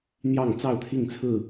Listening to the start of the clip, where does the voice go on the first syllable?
falling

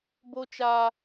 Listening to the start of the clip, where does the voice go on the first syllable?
high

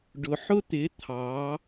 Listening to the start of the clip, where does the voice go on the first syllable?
low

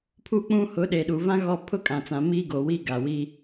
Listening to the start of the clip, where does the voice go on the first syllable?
falling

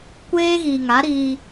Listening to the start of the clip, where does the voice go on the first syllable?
high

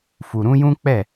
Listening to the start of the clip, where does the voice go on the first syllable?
low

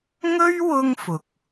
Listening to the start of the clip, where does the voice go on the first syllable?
high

